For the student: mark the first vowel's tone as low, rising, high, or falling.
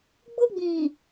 high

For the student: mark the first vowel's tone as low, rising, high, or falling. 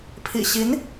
low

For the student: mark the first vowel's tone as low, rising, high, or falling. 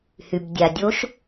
low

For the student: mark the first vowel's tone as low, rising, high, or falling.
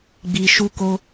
low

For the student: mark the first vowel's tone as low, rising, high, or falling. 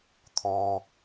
low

